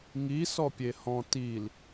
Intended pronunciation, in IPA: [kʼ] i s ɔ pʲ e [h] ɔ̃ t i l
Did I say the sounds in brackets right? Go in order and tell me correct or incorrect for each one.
incorrect, correct

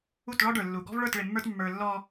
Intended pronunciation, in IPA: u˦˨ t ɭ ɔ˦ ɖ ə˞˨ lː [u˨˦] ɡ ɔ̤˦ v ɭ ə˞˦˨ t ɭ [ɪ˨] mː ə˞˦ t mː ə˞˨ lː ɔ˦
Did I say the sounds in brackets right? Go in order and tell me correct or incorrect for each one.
incorrect, correct

